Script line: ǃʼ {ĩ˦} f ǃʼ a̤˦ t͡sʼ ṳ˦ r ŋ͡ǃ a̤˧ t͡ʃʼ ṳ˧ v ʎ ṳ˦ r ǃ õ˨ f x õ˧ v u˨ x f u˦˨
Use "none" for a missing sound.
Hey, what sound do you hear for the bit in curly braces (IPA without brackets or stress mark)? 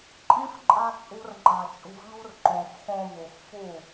ĩ˦